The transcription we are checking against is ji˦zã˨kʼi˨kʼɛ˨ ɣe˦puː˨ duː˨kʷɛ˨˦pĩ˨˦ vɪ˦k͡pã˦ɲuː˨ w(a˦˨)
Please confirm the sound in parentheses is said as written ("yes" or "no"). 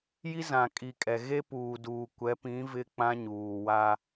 no